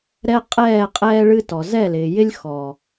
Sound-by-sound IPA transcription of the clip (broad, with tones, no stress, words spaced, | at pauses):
ɾɛ˦qʼɛː˦˨ qʼɛː˦ɭɨ˦tɔ˨ zɛ˦˨lɪː˨jɪ˦lʲ xɔ˨